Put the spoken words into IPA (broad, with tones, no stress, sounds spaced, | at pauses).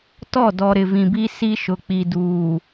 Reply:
t ɔ˦˨ d ɔ˨ ɾ ɪ˨ v ĩ˨ b i˦ s i˦ ʃ ʊ˨ k͡p i˨ d uː˨